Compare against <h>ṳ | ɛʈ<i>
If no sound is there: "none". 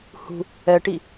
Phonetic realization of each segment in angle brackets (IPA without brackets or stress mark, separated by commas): h, i